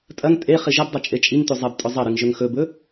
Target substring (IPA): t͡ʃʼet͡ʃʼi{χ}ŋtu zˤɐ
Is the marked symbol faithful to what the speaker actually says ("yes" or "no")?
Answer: no